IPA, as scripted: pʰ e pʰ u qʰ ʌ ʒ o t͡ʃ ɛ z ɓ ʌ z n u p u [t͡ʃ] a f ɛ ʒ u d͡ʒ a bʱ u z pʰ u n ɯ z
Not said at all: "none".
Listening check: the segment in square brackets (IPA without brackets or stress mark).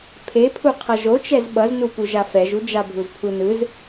ʒ